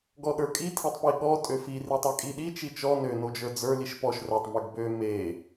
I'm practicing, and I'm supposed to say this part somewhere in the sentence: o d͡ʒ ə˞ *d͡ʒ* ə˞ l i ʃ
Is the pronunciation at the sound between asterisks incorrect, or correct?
incorrect